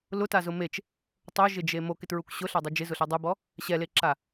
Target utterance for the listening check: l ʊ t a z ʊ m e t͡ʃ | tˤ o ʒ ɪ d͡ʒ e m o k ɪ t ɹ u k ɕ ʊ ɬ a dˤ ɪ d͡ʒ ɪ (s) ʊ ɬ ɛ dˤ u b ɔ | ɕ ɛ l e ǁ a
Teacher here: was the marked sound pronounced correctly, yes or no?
no